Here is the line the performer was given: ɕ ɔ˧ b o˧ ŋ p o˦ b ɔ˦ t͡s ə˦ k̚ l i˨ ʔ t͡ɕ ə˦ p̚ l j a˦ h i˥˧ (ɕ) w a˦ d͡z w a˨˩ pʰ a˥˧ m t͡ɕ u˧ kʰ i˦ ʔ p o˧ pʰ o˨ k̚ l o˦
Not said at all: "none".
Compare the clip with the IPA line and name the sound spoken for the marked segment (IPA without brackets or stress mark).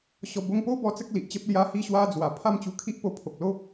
ɕ